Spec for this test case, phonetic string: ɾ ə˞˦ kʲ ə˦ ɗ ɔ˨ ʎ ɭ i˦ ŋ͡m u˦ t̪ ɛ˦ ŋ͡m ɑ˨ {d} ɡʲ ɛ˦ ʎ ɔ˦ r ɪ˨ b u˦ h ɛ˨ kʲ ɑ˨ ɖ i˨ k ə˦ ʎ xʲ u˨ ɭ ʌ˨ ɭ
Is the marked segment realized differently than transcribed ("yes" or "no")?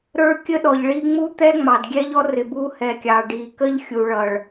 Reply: no